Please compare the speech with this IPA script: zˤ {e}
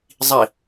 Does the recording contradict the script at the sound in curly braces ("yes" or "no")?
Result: yes